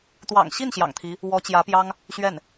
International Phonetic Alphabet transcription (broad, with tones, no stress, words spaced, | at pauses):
t̪wɑ̰˨˩ŋɕi˥˩n ɕjɑ̰˨˩ŋt̪ʰi˧˥ | wɔ˧˥t͡ɕjä˧˥pjɑ˥ŋ | ɕɥɛ˥˩n